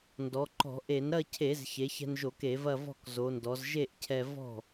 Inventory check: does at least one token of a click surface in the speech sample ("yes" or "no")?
yes